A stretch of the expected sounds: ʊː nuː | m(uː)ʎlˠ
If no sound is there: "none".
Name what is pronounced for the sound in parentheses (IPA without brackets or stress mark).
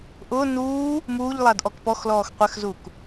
uː